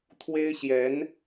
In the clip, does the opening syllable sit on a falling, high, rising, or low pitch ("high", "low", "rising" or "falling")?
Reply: high